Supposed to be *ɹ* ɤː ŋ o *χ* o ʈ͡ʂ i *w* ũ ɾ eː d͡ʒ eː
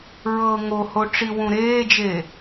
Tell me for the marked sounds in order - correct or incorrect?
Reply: correct, incorrect, correct

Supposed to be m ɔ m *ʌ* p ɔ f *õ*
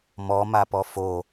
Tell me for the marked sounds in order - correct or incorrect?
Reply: incorrect, incorrect

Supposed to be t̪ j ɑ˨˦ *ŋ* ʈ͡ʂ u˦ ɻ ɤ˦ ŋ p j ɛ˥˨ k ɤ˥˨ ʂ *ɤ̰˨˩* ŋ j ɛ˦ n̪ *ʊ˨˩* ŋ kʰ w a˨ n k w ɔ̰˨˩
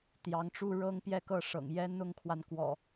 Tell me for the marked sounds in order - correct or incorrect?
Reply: correct, correct, incorrect

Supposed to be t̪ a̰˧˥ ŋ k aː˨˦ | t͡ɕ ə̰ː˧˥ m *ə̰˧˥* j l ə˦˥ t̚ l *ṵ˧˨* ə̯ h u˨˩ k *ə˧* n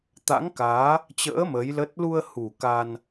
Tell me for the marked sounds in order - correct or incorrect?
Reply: incorrect, incorrect, incorrect

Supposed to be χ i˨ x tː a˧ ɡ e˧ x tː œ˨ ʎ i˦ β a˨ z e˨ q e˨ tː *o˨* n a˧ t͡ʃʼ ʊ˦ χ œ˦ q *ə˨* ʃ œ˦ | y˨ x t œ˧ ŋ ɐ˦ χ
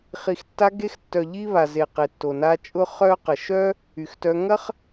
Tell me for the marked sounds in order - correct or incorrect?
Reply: correct, correct

